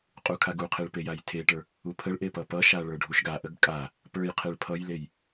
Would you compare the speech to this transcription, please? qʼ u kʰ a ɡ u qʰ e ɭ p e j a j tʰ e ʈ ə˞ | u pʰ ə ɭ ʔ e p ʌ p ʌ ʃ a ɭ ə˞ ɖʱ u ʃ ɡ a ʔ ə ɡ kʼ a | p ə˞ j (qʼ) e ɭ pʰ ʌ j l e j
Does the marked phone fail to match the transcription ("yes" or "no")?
yes